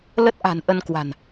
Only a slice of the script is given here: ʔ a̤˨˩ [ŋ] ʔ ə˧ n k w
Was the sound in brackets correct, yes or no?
no